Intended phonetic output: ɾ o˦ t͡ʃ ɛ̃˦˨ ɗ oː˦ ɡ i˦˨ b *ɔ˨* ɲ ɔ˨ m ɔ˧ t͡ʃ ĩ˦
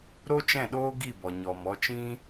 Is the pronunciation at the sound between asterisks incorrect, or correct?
correct